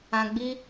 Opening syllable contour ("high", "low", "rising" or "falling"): low